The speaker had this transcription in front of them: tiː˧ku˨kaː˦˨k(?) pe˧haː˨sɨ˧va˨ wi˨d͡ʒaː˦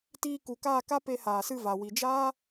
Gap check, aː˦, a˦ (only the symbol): a˦